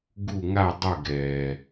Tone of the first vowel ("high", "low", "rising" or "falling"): falling